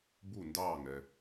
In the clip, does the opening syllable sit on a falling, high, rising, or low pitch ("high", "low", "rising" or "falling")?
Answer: falling